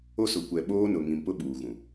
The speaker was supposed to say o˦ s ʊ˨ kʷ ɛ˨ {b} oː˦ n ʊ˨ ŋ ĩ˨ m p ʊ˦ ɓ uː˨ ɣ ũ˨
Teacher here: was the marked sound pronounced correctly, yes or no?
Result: no